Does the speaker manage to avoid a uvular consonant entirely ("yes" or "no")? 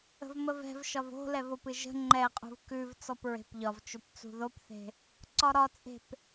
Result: no